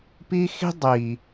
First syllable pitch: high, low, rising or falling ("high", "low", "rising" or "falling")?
high